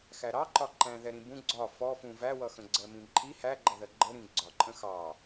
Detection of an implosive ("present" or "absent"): absent